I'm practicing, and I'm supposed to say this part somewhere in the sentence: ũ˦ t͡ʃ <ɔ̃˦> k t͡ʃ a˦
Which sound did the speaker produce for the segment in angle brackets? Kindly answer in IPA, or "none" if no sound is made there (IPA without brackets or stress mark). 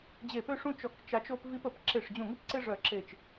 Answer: ɔ˦